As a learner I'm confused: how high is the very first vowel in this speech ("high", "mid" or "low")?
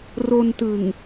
mid